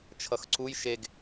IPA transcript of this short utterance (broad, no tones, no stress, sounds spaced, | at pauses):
t͡ʃʰ ʌ x ǀ u j ʃ e ɡ